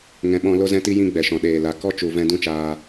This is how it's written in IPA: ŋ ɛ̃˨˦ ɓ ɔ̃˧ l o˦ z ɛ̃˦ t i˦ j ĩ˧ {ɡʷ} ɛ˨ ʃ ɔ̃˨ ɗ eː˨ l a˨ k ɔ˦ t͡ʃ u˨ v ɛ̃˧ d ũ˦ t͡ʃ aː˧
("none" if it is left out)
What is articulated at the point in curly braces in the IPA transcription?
ɡ͡b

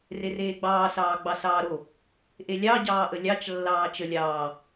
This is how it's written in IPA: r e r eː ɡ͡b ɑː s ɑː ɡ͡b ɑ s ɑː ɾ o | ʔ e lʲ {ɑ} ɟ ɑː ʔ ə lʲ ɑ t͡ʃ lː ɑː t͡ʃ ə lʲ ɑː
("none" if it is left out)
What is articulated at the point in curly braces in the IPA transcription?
ɑ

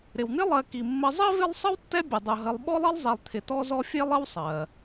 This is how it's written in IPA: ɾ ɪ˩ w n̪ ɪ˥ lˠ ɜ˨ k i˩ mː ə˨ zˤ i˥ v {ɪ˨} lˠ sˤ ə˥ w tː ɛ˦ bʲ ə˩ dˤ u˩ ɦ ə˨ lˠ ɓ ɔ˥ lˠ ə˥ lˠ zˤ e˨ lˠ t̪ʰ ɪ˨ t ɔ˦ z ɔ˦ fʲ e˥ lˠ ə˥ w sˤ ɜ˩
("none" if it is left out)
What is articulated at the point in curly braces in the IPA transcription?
ɪ˦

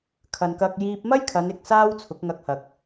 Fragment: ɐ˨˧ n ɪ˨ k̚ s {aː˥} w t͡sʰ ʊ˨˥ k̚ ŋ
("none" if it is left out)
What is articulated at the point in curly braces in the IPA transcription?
aː˥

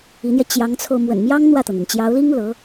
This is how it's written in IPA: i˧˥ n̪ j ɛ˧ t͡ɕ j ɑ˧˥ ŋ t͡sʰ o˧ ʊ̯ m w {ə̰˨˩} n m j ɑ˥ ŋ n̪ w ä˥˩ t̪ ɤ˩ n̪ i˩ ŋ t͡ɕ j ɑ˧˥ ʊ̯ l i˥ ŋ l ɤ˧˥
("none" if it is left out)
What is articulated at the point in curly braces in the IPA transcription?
ə̰˨˩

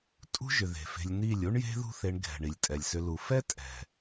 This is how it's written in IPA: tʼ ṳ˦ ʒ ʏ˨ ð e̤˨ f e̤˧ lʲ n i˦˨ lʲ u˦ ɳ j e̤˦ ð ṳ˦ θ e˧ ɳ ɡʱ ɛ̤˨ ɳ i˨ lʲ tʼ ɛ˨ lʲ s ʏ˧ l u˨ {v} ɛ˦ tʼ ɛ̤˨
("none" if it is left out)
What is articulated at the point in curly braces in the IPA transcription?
f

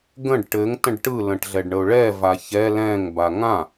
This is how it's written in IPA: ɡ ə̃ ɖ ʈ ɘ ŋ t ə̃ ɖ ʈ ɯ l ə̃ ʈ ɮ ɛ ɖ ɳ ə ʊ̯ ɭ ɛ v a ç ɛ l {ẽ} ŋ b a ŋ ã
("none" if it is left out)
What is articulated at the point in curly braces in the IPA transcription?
ɛ̃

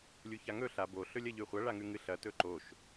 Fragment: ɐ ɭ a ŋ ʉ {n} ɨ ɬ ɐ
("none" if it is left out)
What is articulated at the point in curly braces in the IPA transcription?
ŋ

